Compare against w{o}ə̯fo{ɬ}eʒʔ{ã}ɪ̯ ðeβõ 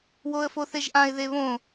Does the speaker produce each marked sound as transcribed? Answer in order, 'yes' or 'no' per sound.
yes, no, yes

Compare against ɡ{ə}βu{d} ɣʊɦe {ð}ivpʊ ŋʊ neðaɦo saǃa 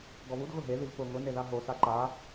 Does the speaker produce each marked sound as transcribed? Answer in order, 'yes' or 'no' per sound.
no, yes, yes

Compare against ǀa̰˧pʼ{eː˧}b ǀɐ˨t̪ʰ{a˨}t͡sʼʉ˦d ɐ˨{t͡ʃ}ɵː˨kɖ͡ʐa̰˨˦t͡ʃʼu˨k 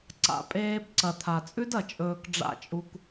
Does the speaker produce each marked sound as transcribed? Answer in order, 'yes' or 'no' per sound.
yes, yes, no

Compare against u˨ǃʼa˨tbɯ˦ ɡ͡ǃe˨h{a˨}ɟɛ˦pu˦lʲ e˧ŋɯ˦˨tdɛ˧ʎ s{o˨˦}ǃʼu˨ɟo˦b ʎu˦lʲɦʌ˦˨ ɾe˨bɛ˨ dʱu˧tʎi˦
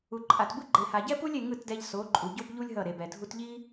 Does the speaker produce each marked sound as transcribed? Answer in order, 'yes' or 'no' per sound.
yes, yes

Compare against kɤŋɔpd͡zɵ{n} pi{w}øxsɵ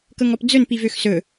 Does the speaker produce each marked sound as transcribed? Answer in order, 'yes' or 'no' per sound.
yes, no

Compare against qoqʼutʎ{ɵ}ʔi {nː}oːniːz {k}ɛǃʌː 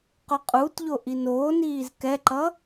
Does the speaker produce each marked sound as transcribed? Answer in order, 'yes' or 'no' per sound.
no, no, yes

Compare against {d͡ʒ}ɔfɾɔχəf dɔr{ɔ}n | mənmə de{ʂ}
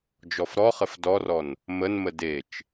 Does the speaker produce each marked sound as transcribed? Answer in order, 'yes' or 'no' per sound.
yes, yes, no

